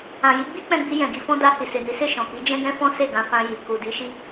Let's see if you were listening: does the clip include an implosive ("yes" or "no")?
no